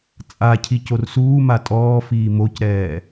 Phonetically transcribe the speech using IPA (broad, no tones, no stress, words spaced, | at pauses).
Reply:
t͡sʼa cʰicorsuːma tʼɔːfiː mocɾɛː